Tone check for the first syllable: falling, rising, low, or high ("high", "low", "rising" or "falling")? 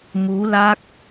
rising